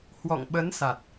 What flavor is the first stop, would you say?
implosive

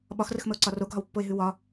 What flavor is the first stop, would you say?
implosive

